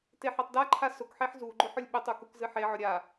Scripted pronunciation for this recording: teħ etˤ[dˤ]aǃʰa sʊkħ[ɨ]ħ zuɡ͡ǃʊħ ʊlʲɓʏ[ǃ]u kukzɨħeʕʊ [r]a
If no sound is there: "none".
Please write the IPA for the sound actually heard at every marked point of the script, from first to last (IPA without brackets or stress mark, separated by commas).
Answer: d, e, tˤ, ɾʲ